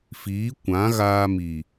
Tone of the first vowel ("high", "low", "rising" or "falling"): rising